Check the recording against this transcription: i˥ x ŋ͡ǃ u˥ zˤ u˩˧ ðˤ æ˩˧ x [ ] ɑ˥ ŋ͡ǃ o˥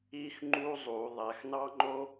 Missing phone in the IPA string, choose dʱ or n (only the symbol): n